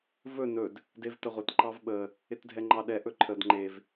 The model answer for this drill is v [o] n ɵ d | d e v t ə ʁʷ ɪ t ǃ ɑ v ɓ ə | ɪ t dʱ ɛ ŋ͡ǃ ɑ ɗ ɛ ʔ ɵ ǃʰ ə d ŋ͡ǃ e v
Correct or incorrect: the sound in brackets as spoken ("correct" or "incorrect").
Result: incorrect